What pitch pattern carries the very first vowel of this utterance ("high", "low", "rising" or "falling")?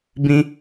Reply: high